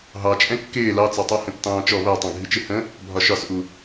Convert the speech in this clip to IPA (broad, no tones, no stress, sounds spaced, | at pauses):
ɦ ɑ t͡ʃʼ ɛ̃ kː ɪː l ɑ t͡s ɑ tˤ ɜ h ə̃ tː ɑ̃ː t͡ʃ ɔ β æ tˤ ɑ̃ ɡʱ i t͡ʃ ɪ h ə̃ | bʱ ɒ ʃ ɒ s ʔ u